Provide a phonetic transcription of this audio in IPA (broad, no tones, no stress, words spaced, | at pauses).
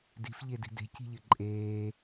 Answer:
di̤fʎedi̤ de̤ci̤ʎɘ ǃʼeː